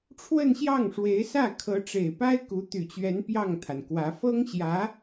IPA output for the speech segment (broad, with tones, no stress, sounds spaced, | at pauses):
ʈ͡ʂʰ w ə˥˧ n ɕ j ɑ˥˩ ŋ ʂ w e˧˥ ɪ̯ s ä˥˩ kʰ ɤ˧˥ ʈ͡ʂ e˨˩ ɪ̯ p a˥ ɪ̯ k u˧˥ t̪ y˨˩ t͡ɕ ɥ ɛ˧˥ n p j ɑ˥˩ ŋ t̪ʰ a˩ n k w ä˧˥ f ɤ˥ ŋ ɕ j ä˧˥